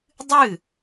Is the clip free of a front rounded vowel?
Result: yes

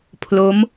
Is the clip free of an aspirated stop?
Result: no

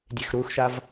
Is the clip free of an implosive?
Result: yes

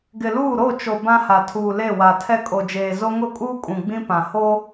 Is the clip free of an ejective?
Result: no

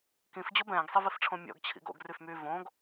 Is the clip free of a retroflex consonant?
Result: no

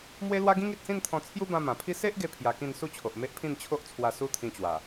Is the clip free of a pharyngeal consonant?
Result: yes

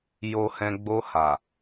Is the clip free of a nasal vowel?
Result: no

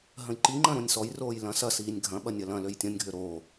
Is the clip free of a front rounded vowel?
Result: no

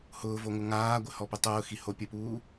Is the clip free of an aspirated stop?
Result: yes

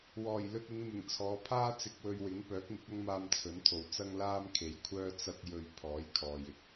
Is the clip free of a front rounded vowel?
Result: no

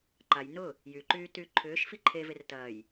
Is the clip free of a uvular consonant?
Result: yes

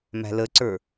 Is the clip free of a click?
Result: no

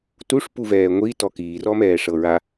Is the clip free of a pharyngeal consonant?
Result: yes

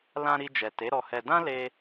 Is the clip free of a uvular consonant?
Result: yes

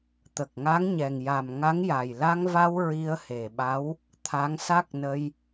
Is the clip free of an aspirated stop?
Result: no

